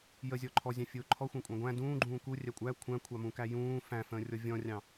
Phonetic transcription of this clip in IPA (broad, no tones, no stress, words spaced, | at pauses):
jəzʲɔ ǃʰɔzʲɑ̃fʲʊː ǃʰɔxʷɑ̃kʷʼɑ̃ ɡʷæ̃ dũːɡ͡ǃũː kurʲæ kʷʼæ kʷʰæ̃kʷʰɑmũkæ jũː fæ̃fə̃ːrʲɔ vʲɔ̃rʲɑ̃